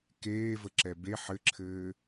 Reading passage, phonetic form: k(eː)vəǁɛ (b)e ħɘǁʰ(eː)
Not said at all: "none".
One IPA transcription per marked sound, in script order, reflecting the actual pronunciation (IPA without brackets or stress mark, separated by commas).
eː, b, ɘː